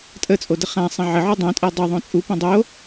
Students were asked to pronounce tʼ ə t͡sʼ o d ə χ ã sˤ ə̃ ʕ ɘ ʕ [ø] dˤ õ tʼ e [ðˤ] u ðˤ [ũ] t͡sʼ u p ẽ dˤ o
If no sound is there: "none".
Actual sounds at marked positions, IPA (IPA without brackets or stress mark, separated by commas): u, dˤ, õ